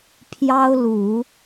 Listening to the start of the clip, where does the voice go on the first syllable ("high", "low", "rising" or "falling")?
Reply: high